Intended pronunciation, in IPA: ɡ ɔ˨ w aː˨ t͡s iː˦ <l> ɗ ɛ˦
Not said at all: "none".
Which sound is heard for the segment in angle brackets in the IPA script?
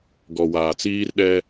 r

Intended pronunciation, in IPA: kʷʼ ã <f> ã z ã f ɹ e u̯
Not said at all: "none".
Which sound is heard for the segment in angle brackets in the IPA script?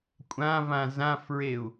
v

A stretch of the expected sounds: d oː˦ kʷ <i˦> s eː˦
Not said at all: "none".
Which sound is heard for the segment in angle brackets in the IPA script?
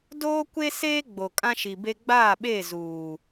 e˦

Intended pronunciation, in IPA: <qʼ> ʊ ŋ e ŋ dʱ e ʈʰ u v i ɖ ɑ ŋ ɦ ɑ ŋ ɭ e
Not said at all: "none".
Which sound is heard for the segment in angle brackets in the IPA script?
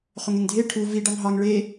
χ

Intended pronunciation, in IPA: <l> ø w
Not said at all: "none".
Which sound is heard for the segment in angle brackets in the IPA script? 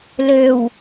l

